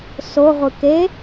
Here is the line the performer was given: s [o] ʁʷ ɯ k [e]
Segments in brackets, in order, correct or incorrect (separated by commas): correct, correct